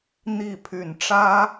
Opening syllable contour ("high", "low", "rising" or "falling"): falling